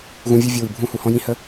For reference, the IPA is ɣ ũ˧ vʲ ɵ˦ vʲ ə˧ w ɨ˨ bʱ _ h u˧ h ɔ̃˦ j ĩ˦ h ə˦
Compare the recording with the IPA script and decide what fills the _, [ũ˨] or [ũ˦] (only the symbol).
ũ˦